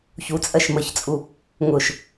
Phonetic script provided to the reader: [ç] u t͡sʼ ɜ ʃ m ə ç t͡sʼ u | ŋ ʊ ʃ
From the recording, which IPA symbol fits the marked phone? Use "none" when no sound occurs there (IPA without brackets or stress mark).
ç